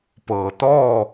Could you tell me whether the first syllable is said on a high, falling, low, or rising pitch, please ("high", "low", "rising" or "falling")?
low